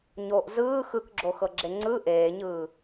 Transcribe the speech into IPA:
ɲ o ʔ z ɯː x ɯ k ɡ͡ǁ o x ɤ ɡ͡ǁ e ŋ͡ǀ ɯ ʔ eː ɲ ɯː

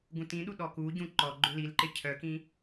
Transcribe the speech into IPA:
ɡ ũ t ĩ ɗ u ɗ ɔ k u ɟ ũ ǃ ɔ ɡ͡ǃ ʏ l i l ǃ ɪ cʰ œ k ĩ

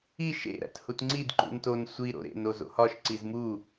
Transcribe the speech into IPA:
i ʃ ḛ ɾ æ̰ t h u t ŋ͡ǀ i d ǃ ṵ n t o n sʷ i ɾ o̰ ɾ ḛ n o z o̰ h ɒ ʃ ǀ i z m u

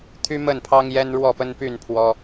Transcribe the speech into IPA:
t̪ʰ y˦ m ə˥˨ n pʰ ɑ˦ ŋ j ɛ˦ n ɻ w ɔ˥˨ p ə˦ n p y˥˨ n pʰ w ɔ˦

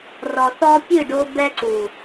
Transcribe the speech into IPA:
r ɔ˨ θ ɔ˧ pʲ ɨ˦˨ ɖ o˧ b ɛ˧ ǀ u˨

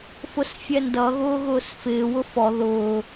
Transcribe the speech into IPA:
f ʊ s fʲ ɛ n d ʌ ɣ ʊː ɣ ʊː s f ɪː w ʊ f ɔ ð ʊː

